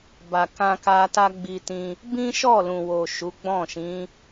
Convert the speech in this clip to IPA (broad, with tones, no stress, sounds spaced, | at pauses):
b a˨ k ã˧ k a˧ t a˦ ɡ͡b i˧ t ĩ˧ | b ĩ˦ ʃ ɔ˦˨ l ũ˨ w o˨ ʃ u˨˦ ɡ͡b ɔ̃˦˨ ʃ ĩ˨˦